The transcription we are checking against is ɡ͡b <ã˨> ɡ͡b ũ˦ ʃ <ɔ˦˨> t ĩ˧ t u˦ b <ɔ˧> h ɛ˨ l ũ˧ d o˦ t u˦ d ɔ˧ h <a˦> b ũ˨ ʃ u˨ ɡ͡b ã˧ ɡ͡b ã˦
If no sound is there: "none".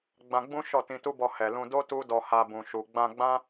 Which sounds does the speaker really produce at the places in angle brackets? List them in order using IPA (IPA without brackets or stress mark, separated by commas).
ã˧, ɔ˦˨, ɔ˧, a˧